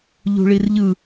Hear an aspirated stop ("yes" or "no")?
no